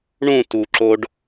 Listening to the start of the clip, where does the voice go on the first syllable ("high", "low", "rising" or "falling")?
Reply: falling